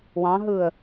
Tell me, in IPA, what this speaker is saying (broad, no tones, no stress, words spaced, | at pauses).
wɑ̃ɦɯːə̯